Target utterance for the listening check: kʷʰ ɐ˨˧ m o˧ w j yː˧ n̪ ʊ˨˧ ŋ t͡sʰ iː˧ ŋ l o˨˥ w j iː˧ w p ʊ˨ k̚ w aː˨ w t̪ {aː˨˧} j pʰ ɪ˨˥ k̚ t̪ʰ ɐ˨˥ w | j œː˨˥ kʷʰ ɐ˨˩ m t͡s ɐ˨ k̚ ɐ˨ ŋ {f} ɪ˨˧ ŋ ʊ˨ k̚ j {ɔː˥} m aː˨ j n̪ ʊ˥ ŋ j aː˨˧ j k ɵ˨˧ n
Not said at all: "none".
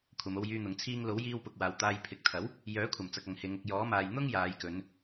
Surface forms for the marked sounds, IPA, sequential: aː˧, h, ɔː˨˥

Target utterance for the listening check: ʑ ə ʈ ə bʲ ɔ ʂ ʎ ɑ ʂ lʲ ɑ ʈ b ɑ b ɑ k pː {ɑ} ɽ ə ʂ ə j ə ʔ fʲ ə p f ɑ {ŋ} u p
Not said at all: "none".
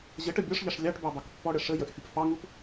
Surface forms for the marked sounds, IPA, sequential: ɔ, ŋ

